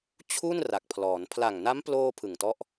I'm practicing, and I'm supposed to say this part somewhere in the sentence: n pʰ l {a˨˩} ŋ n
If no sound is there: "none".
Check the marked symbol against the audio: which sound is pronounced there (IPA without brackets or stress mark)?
a˨˩